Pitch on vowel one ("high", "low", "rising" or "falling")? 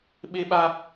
high